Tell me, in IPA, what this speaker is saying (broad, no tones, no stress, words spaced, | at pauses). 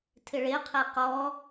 tʰɪɭeqʰe qɔ